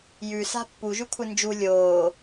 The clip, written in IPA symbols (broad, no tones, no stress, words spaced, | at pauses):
jʉsa̤ pːuʒʉkʷʰɨ nd͡ʒu lʲoː